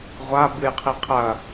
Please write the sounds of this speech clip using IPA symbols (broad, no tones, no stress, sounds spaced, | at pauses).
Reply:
ʁʷ a b ɨ j qʰ i qʰ ɐ